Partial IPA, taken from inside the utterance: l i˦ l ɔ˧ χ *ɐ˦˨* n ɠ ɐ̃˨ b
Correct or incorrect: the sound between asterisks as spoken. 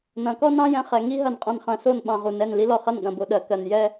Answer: correct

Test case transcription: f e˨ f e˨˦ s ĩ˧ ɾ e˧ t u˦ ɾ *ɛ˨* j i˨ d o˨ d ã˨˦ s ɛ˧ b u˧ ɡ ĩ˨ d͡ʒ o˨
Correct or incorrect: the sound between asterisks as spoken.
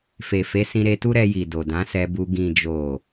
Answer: incorrect: ɛ˧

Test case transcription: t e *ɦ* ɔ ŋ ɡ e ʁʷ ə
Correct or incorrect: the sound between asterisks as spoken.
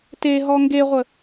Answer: correct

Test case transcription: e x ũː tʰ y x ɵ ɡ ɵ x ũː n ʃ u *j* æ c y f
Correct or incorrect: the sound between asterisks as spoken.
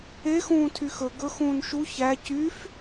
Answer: incorrect: ç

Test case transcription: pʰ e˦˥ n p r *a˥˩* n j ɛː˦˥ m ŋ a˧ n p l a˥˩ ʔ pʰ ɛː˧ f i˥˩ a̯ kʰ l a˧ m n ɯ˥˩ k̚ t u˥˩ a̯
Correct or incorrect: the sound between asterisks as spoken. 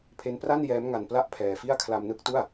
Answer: correct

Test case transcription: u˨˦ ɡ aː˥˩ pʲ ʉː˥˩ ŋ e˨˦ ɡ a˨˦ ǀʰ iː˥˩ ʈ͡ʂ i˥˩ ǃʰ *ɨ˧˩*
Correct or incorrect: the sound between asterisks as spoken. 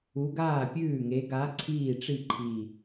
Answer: incorrect: i˧˩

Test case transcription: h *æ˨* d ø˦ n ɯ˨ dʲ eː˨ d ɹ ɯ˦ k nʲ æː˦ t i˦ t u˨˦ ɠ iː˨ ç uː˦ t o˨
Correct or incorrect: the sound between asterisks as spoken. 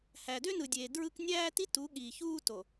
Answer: correct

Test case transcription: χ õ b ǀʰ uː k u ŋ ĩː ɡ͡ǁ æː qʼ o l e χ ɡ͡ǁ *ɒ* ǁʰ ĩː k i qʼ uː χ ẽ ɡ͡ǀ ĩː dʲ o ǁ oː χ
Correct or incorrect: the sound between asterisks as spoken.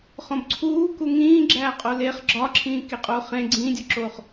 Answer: correct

